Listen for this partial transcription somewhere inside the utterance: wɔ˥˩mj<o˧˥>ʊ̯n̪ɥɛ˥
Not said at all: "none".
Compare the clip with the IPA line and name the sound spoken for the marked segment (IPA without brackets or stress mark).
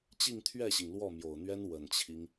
o˨˩